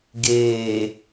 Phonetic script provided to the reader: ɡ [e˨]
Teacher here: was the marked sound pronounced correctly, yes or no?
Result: no